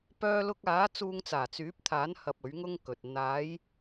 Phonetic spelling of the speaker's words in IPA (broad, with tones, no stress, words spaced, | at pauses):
pœː˧lʊ˧k̚aː˨˥ t͡suː˧ŋt͡saː˨˩t͡syː˨˥p̚t̪ʰaː˨˥n hɐ˧p̚ɵ˨˥ɥŋʊ˥ŋkɵ˨t̚ n̪aː˨˧j